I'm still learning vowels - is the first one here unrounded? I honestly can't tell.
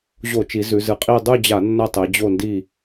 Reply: no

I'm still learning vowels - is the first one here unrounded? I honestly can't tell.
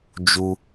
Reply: no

